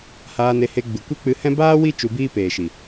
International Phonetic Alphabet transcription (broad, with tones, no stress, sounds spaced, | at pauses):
h aː˧ n e˧ h e˧ ɡ͡b ɨ˨ kʷ e˦ k͡p ɨ˧ h ɛ̃˦ b aː˦ w i˦ t͡ʃ u˧ b iː˦ p eː˨ ʃ i˨